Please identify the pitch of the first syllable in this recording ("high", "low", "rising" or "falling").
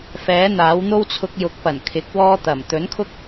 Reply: rising